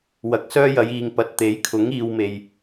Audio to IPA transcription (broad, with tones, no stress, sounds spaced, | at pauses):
w ɐ˨ k̚ s œː˥ j ɐ˨˧ j iː˨ ŋ p ɐ˨ t̚ t̪ e˨˥ j kʰ ʊ˨˥ ŋ iː˨ w m e˨ j